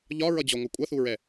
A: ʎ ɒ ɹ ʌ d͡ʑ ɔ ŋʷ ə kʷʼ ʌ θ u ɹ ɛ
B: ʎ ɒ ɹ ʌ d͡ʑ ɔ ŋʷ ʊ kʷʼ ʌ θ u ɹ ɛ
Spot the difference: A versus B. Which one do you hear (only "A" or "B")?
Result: A